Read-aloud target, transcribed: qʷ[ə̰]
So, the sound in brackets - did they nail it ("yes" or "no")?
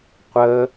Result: no